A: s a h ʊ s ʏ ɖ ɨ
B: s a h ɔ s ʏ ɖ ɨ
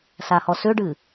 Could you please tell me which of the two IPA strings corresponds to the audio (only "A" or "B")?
B